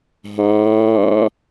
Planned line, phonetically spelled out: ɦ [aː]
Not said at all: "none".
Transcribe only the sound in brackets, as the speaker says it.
aː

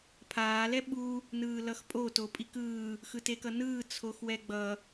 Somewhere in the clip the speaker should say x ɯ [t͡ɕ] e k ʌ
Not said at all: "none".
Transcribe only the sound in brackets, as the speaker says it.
t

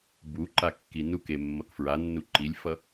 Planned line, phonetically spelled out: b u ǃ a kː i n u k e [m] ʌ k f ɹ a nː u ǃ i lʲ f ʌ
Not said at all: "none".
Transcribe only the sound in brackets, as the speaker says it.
mː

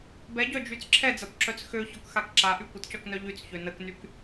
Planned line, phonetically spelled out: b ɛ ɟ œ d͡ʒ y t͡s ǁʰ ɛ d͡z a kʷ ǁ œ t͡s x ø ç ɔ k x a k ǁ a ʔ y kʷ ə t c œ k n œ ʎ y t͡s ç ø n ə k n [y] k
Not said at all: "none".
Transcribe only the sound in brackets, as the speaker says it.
y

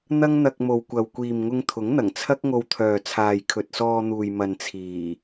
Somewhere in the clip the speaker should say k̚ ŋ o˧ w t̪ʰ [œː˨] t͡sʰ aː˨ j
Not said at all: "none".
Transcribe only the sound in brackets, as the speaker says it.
œː˨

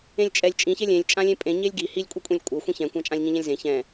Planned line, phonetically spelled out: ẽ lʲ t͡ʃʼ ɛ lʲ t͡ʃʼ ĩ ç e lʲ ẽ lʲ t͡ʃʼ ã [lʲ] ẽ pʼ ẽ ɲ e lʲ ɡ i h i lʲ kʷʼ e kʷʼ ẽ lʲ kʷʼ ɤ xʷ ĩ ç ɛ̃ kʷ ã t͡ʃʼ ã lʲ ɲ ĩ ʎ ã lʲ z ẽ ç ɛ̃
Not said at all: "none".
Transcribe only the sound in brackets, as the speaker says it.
lʲ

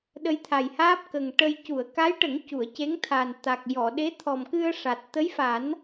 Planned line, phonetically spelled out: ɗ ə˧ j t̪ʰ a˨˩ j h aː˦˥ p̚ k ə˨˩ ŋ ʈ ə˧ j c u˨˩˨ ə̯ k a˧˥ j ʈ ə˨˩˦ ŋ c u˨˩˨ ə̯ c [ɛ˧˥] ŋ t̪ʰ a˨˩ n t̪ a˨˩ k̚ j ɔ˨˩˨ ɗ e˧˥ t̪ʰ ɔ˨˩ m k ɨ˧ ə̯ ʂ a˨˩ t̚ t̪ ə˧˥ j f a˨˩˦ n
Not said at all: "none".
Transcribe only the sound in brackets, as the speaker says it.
e˧˥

